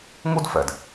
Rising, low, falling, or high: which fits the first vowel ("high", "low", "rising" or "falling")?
high